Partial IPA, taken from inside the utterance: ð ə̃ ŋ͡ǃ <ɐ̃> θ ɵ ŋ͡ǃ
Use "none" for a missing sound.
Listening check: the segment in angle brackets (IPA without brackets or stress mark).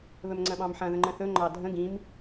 ə̃